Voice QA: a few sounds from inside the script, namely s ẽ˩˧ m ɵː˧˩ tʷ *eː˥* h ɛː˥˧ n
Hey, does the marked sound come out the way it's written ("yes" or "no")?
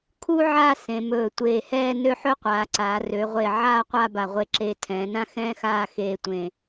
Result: no